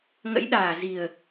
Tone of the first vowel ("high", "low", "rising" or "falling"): rising